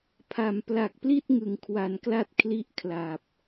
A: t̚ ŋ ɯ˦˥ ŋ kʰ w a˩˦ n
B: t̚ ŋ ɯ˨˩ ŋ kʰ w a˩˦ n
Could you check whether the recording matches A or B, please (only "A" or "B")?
B